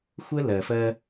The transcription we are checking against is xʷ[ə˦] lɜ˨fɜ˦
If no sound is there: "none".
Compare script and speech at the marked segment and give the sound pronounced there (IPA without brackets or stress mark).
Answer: ə˦